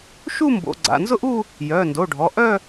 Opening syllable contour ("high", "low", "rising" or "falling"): falling